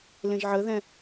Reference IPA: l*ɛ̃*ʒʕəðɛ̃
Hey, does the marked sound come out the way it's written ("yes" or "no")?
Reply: no